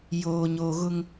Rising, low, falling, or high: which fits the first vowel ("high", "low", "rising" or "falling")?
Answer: low